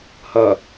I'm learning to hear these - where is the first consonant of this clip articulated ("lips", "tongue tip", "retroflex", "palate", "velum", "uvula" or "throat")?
throat